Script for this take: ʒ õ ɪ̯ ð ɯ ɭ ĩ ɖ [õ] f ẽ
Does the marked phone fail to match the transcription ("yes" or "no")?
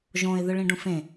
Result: yes